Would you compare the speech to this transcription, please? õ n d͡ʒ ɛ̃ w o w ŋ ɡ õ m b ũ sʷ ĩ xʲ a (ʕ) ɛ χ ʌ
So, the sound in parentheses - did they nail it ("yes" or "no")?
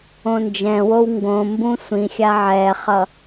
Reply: yes